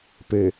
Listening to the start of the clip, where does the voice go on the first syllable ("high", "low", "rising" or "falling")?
low